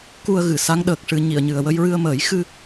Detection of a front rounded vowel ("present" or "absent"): absent